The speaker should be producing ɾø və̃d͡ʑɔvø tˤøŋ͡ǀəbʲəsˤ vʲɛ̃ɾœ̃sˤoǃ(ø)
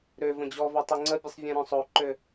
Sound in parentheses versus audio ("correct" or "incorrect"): correct